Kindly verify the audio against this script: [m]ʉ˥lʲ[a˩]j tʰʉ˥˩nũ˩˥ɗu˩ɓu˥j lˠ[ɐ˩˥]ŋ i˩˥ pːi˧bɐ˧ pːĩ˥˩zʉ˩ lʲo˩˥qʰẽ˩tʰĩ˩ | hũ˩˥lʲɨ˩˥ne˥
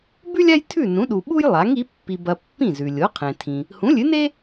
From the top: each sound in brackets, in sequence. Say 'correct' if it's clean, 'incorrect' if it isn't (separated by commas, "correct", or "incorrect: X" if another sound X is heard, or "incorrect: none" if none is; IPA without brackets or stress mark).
incorrect: b, incorrect: a˥, incorrect: a˩˥